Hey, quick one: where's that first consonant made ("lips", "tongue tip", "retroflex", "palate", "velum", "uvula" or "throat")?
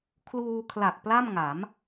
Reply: velum